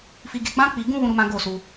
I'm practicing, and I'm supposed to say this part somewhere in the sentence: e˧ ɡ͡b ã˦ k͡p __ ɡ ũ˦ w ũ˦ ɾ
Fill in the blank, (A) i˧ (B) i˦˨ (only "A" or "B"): A